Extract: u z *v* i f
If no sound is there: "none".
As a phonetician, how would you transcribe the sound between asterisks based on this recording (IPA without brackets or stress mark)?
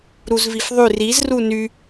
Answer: v